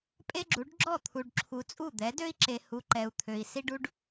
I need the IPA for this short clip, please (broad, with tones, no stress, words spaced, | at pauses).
pʼe˦ɡ͡ǁu˨˦ɖ ɡ͡ǁɔ˦˨t̪ʰu˨ɖǁʰu˨t͡sʼu˦˨ d̪ɛ˨˦dø˦i̯ǁe˨ hu˨ ǃɛ˨u̯t̪ʰø˨i̯ si˦ɖu˦ɖ